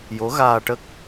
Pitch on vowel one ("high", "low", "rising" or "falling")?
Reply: rising